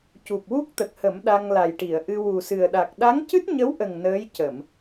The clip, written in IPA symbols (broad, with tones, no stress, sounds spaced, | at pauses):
c u˨˩ p̚ w u˦˥ k̚ t̪ ə˨˩ k̚ h ə˨˩˦ m ɗ a˧ ŋ l a˨˩ j ʈ i˨˩˨ ə̯ ʔ ɨ˧ w u˨˩ s ɨ˨˩ ə̯ ɗ a˨˩ k̚ ɗ a˧˥ ŋ c ɨ˦˥ t̚ ɲ ə˧˥ w ʔ ə˨˩ ŋ n əː˧˥ j c ə˨˩˨ m